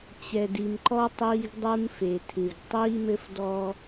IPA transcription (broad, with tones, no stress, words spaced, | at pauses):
t͡ɕɛ˨di˨mǃɔ˦ tˤiː˦ɡdˤu˦mfe˨tʰɨ˨ɡ tˤiː˦mɘ˦fdɔ˦